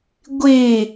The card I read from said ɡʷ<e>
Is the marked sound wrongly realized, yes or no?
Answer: no